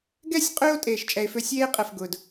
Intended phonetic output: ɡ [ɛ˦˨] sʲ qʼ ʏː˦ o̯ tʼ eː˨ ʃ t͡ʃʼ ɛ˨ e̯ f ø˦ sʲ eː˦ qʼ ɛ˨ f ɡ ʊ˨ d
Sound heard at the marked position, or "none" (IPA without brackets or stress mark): ɛ˦˨